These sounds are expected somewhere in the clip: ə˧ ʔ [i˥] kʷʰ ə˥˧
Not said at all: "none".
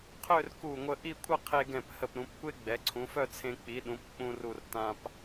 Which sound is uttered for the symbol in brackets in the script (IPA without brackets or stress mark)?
i˥˧